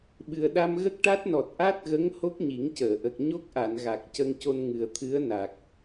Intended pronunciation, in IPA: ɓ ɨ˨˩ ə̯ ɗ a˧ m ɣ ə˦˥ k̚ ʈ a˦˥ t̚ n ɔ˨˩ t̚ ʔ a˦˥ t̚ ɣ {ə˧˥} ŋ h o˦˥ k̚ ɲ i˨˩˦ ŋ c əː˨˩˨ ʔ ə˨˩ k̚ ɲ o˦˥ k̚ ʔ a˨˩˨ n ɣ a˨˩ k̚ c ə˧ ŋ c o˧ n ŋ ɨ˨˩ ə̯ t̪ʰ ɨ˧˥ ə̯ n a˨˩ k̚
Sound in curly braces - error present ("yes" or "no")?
no